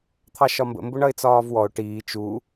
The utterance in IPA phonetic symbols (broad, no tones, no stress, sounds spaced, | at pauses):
t̪ʰ ɑ ʃ ɒ m b ə̰ m b ʊ ɳ ʌ ɪ̯ t͡s ɒː v w ɔ ʊ̯ ʈ iː t͡ʃ u